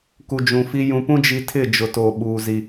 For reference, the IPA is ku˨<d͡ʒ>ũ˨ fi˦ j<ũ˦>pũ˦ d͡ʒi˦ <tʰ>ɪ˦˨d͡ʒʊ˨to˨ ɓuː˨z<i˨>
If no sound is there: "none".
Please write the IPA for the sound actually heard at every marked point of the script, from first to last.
d͡ʒ, ũ˨, tʰ, i˨

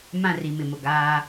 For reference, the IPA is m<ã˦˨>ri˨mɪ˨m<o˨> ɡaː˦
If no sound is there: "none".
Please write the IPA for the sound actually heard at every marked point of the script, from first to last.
ã˦˨, o˨

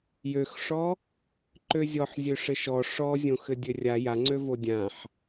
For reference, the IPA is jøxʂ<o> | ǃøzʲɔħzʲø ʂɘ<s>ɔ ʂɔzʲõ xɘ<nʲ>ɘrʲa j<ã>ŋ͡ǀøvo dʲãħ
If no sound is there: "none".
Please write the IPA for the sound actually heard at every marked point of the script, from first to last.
ɔ, ʃ, dʲ, a

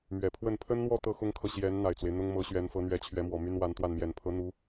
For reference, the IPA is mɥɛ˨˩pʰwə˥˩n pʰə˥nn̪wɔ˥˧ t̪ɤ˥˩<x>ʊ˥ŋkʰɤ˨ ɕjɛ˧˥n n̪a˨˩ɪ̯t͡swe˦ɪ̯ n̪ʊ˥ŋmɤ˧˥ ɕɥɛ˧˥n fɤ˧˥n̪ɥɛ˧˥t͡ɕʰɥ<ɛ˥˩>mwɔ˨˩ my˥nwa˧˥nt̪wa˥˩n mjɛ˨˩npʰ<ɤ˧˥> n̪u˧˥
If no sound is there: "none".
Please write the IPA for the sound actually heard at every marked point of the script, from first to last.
x, ɛ˧˥, ɤ˧˥

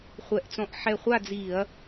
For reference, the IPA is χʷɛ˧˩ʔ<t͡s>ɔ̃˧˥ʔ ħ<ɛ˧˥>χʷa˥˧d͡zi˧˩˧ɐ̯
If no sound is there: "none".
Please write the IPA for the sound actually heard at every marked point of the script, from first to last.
t͡s, ɛ˧˩

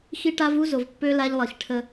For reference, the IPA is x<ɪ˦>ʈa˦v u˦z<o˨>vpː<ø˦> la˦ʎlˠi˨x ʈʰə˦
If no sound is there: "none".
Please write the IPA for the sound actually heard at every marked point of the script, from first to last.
i˦, o˨, ø˦

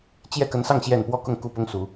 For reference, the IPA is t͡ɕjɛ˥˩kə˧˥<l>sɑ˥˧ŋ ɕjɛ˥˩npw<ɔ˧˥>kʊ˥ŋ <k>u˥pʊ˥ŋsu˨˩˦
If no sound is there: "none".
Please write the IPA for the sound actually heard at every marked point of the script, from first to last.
n, ɔ˥, k

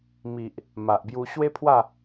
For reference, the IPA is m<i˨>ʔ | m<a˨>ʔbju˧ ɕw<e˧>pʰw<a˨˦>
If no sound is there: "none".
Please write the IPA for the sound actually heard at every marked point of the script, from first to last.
i˨, a˨, e˦, a˥˧

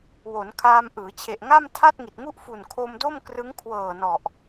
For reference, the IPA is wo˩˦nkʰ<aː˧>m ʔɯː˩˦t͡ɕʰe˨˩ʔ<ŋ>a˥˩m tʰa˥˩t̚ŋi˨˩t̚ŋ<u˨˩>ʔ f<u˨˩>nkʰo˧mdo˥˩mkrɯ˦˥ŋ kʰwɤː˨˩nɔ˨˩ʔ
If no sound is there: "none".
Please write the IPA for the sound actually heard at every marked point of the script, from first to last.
aː˧, ŋ, u˥˩, u˨˩

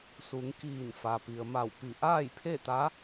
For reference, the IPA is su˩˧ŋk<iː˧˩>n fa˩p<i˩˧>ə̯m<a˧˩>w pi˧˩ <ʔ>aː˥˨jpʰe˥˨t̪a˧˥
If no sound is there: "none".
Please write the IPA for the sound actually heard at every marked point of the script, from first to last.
iː˧˩, i˩, a˧˩, ʔ

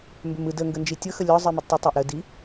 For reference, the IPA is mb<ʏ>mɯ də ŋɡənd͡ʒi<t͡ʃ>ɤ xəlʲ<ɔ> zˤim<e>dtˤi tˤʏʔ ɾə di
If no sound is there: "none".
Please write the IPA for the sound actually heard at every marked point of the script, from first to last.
ʏ, tʲ, ɔ, i

